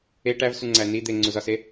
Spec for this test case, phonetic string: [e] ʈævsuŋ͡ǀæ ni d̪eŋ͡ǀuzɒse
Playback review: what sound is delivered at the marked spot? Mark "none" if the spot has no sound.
e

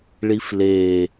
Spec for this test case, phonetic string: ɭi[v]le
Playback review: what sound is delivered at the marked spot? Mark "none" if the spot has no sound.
f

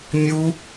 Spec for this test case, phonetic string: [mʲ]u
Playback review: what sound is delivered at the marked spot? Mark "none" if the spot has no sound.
mʲ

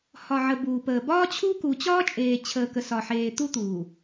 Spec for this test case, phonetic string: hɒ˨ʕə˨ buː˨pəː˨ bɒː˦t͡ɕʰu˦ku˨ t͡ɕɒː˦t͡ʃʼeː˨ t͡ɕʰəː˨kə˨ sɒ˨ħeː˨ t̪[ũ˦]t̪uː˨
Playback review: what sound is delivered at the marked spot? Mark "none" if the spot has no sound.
u˦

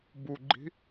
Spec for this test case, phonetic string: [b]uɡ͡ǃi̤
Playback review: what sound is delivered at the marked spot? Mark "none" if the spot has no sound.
b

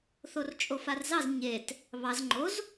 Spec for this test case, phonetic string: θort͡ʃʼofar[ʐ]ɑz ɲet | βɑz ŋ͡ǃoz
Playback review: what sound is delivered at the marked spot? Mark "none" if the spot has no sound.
z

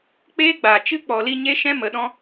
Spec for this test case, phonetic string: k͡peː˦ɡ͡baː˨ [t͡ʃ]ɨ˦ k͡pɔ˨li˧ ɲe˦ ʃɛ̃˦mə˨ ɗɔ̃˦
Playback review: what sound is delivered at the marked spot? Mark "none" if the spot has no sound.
t͡ʃ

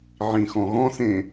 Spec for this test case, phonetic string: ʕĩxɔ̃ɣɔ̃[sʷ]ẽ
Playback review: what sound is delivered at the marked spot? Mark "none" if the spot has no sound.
s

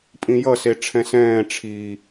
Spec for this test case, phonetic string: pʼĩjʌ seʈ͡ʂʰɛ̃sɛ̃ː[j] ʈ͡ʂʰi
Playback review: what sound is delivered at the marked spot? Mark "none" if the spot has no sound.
none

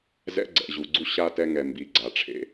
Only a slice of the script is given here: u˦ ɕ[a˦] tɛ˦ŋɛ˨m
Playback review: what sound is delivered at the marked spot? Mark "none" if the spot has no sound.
a˦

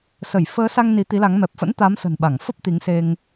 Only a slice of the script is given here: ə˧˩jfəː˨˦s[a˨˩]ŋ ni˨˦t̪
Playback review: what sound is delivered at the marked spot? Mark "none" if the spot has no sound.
a˧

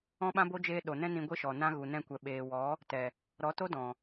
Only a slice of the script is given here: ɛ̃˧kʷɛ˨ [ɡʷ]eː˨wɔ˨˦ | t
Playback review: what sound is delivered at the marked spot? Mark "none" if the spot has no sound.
ɓ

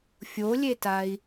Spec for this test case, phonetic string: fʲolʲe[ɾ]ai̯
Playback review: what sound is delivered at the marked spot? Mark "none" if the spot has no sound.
t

